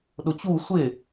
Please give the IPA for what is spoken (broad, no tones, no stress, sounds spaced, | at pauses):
ɗ ʊ t͡ɕ u sʷ ɪ